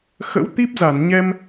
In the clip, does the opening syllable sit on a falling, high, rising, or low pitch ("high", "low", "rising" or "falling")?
rising